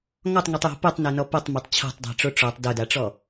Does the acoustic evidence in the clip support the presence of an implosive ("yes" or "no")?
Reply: no